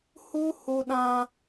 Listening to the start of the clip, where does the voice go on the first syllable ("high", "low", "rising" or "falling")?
high